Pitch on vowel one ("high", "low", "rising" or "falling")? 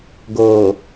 low